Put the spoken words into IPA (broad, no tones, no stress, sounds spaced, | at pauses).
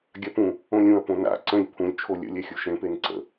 ɡʲ a p ũ | õ lʲ ũ ɐ̯ p õ n a̰ ǀ ə̃ lʲ pʰ ũ lʲ t͡ʃʰ o lʲ ə̰ lʲ ɛ xʲ u ʃ ẽ p e n ǀ ə̰